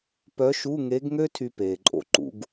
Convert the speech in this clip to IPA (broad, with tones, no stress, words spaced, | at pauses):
pœ˧˥ʃu˧˥˧ŋe˧˥ɡŋø˥ tʰy˥ peː˨ǃʼo̰˥ ǃṵ˧˥ɡ